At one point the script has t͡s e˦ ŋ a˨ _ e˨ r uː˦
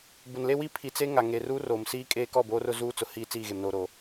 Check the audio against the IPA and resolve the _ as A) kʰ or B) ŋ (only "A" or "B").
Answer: B